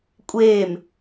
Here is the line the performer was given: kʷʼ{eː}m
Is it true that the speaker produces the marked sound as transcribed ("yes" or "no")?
yes